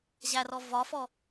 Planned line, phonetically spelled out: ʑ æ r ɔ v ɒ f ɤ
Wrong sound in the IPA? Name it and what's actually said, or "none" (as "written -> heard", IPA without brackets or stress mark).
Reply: ɤ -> ɔ